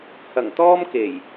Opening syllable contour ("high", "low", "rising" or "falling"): low